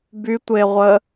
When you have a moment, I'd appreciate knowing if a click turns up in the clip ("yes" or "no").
no